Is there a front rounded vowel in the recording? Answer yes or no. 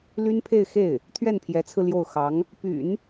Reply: yes